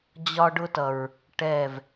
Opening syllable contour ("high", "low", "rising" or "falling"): high